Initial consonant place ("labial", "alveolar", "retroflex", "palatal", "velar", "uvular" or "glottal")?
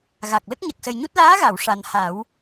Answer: velar